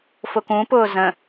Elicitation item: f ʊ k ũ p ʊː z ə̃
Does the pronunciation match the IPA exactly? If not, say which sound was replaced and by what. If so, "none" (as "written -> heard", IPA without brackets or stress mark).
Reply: none